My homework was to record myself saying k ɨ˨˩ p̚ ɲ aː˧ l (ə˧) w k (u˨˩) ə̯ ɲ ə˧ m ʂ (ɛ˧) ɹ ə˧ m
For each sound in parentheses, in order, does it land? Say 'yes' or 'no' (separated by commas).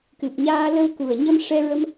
yes, yes, yes